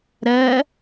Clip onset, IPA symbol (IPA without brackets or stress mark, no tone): ɾ